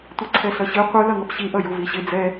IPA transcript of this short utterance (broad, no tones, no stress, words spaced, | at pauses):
tʷiǀʰɛɬʌɕɯ qʷɯ lʌŋʌpɕi ʔʌjuviɕɪ d͡zɛ